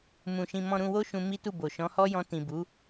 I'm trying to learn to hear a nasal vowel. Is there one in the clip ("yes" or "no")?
yes